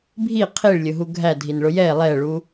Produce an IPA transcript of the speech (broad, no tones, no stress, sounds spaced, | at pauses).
bʱ i qʰ i ɭ lʲ ʊ ɦ u ɡʱ æ dʱ i n ɭ ʊ j ɛ lˠ ɛ ɭ u